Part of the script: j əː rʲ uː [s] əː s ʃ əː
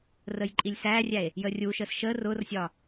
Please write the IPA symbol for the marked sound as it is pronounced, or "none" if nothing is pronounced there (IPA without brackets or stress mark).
ʃ